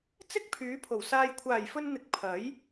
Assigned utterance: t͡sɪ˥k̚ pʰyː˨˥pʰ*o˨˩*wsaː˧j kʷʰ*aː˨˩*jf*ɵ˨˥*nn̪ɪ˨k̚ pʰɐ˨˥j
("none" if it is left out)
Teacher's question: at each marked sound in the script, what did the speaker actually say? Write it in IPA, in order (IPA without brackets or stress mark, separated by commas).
o˨˩, aː˨˩, ɵ˧